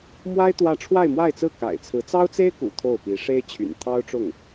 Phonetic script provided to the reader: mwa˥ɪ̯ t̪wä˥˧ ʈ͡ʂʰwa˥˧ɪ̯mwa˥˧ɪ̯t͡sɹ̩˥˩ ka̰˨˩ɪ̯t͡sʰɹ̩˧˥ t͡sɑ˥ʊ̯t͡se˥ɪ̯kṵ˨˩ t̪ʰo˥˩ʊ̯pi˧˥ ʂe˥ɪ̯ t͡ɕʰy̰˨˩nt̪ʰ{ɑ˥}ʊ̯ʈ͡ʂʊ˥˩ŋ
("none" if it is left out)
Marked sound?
ɑ˥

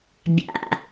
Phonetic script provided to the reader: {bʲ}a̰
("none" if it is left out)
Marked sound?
bʲ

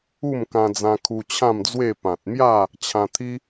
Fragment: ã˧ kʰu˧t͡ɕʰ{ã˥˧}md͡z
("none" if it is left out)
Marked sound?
ã˥˧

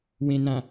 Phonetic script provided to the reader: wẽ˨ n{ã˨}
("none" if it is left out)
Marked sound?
ã˨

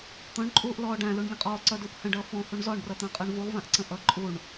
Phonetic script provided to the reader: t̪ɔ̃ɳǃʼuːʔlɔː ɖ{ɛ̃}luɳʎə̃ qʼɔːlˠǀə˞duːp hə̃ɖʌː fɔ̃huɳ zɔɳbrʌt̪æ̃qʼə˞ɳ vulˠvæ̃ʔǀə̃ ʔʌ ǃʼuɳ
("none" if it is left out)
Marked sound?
æ̃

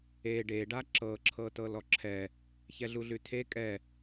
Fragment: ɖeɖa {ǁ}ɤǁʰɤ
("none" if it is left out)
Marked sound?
ǁ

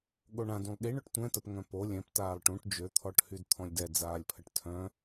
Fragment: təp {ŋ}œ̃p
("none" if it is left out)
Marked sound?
ŋ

